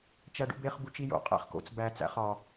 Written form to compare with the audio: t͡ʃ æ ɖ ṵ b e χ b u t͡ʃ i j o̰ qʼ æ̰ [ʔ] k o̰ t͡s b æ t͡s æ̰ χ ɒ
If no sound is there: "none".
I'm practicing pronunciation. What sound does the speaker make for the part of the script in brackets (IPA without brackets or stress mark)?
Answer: χ